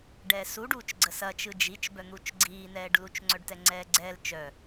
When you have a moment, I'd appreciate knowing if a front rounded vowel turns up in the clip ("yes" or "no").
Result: yes